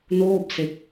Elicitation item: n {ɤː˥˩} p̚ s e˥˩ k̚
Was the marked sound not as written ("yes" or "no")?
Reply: yes